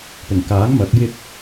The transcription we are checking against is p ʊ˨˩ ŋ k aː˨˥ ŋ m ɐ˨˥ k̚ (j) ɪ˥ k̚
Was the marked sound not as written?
no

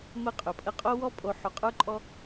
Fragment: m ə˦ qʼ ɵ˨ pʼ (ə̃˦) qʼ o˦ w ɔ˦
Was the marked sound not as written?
yes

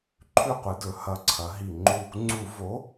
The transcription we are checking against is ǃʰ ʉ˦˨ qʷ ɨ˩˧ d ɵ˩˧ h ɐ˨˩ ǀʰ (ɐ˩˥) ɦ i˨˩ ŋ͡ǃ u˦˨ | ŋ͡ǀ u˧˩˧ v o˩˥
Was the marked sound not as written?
yes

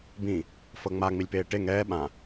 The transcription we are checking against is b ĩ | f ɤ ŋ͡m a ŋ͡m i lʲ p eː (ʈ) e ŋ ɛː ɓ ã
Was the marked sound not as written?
no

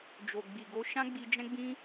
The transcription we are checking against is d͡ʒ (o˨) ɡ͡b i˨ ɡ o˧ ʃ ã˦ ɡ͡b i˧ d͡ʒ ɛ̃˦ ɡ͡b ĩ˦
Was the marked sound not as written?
no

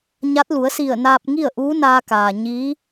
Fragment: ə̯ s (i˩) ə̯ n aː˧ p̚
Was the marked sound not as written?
yes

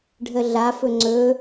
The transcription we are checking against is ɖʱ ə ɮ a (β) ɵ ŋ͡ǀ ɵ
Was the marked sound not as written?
yes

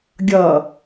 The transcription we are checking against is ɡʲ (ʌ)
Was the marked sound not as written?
no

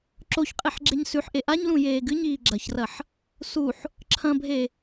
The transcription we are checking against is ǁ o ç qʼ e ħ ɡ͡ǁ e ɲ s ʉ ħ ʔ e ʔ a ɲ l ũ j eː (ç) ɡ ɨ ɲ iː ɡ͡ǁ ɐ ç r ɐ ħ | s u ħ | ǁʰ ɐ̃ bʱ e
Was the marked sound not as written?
yes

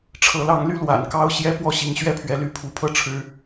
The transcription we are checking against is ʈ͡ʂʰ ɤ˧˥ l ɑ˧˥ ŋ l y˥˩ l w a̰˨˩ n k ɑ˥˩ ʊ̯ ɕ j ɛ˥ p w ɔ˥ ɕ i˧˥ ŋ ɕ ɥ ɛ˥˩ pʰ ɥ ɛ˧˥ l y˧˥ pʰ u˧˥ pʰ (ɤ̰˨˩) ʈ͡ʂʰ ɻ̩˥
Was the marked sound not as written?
yes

